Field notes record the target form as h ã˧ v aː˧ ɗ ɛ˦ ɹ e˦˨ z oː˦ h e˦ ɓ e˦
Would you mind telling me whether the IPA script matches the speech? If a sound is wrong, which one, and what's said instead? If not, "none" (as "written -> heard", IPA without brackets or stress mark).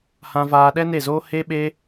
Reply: ɹ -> n